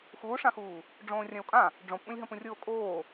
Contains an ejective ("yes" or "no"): yes